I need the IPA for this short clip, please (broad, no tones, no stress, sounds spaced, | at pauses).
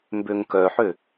m b ø ŋ k œ ħ ø